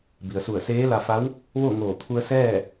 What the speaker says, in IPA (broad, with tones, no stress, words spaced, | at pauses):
bi˩ə̯su˧˩ə̯seː˧˥ la˧fa˧˥w | ʋo˥˨ŋoː˧˩t̪ʰu˧ə̯ sɛː˥˨